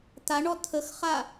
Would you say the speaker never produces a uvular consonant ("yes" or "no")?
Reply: no